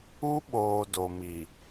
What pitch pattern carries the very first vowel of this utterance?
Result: high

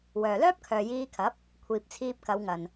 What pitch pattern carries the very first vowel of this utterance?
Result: low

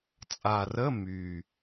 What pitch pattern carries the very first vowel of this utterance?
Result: low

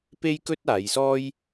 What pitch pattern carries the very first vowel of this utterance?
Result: high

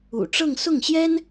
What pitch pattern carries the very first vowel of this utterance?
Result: low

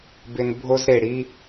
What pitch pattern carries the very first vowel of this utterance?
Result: high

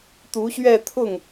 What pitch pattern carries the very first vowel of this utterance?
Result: rising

